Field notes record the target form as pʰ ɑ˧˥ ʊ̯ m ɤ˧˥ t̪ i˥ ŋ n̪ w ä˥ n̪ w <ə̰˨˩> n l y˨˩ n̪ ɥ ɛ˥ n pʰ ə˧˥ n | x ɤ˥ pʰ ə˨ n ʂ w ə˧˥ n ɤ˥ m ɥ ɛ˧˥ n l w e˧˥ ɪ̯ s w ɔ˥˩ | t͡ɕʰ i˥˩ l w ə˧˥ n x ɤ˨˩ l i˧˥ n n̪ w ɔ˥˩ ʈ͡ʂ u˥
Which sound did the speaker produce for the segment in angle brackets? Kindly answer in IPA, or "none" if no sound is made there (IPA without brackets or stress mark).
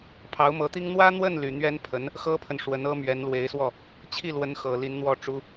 ə˥˩